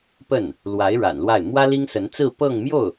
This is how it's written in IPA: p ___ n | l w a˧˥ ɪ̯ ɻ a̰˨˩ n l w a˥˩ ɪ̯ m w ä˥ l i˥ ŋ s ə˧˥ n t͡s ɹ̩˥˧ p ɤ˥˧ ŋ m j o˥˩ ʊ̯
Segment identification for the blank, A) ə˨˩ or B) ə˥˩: B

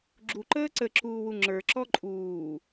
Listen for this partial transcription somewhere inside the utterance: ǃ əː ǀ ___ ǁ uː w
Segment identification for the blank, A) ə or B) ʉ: A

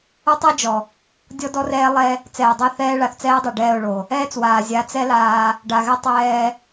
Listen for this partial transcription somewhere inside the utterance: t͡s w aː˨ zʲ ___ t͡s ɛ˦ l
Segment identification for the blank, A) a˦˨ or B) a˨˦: B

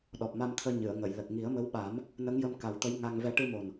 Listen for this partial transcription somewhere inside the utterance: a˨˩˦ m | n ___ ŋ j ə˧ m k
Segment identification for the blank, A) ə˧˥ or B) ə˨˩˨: A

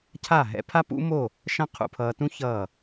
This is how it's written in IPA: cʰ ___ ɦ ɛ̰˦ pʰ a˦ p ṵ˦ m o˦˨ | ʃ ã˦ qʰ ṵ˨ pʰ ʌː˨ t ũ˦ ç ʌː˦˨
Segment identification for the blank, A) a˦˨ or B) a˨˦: A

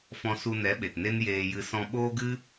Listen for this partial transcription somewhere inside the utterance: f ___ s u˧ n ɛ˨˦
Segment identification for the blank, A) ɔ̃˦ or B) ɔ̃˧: B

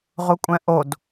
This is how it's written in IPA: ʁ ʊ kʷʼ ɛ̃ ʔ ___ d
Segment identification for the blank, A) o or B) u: A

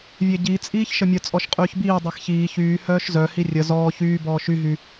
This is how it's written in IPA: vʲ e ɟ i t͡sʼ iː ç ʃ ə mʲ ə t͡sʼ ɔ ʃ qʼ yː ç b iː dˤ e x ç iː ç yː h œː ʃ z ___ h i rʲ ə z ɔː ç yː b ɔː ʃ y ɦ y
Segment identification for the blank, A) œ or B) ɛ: A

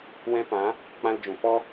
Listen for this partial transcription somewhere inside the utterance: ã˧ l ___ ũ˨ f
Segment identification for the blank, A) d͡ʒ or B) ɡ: A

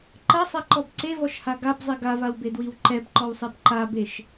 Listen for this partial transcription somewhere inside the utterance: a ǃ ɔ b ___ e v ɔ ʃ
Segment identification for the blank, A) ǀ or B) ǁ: A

